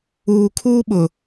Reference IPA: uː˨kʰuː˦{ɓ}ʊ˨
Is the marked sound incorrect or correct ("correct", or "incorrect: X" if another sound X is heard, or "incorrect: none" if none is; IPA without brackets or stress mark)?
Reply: correct